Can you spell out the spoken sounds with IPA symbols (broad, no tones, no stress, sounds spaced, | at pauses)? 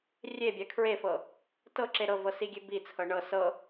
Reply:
rʲ e bʲ a kʰ ɹ e f ɤ | t ɤ ǁ e ɾ ɤ v ɤ s i ɡʲ e b i t͡sʰ ɤ ɳ ɤ s ɤ